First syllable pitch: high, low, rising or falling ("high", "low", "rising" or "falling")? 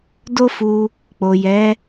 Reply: high